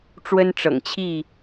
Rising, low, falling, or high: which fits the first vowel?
high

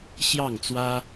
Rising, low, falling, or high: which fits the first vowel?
falling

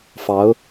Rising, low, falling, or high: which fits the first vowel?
rising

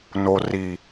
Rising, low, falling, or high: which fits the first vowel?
low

